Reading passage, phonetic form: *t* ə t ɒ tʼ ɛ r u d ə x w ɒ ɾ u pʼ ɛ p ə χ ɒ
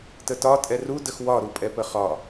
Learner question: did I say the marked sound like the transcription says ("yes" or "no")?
yes